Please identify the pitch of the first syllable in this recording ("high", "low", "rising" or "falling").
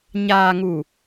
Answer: low